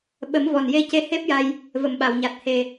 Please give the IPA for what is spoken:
ɓə˨˩˦mvɔ˨˩nje˧ ce˧˥he˦˥p̚ja˧j | və˨˩˨mɓa˨˩˨wɲa˨˩t̚ he˨˩

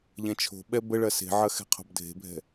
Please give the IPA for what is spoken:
ʎɛ̃t͡ʃʰo̤ɓɛ bəɭɐ se̤ʕɐ xɛ̤qʰo̤bdʱe̤bʱɛ̤

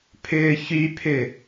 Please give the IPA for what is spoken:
pʰʏːçypʰʏ

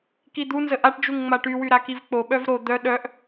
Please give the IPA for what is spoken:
kid̪u nzəʔaʈd͡ʒuŋ ŋ͡maʈywy ɾakivk͡po ɓœvɾo d̪œ ɗœʔ

